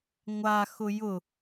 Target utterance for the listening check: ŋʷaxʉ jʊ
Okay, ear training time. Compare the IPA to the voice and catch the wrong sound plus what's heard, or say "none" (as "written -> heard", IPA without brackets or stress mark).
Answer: ʉ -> ʊ